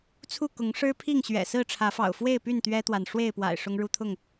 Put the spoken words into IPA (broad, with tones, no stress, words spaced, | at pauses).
t͡sʰu˥˨ kʊ˨˦ŋʂɻ̩˦ pʰi˥˨ŋɕɥɛ̰˨˩sɹ̩˥˨ ʈ͡ʂʰä˨˦fɑ̰˨˩ʊ̯fwe˥˨ɪ̯py˥˨n t̪ɥɛ˦t̪wa˨n ʂwe˥˨ɪ̯pwa̰˨˩ɪ̯ ʂʊ˦ŋɻu˦t̪ʰʊ˥˨ŋ